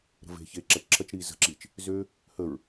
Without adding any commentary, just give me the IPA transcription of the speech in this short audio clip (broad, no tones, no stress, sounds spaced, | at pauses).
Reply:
ɾ ə̤ v e̤ ç e ǁ a t͡ʃ ǁʰ ɐ t͡ʃ ɾ iː z ə̤ ǁ iː t͡ʃ | z ø | h ə ɹ